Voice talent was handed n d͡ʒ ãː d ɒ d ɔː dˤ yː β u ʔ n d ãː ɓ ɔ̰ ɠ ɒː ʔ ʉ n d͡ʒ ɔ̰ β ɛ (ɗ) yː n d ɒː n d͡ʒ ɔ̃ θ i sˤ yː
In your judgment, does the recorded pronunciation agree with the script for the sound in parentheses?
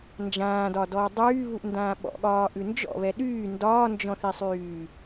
yes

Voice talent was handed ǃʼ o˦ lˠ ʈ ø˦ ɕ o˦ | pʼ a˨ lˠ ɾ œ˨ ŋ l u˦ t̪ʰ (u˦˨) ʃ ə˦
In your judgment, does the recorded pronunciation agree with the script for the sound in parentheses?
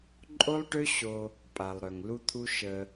no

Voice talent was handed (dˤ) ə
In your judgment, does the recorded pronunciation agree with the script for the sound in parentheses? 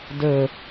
no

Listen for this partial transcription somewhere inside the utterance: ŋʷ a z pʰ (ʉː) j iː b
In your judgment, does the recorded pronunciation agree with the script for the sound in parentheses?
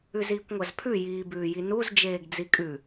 no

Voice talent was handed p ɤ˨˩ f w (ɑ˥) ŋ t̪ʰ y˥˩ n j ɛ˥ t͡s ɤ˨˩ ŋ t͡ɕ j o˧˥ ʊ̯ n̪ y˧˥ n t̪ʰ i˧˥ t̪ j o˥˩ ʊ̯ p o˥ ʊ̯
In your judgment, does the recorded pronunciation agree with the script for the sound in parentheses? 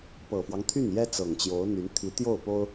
no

